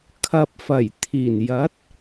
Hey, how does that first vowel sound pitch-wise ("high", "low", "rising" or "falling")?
low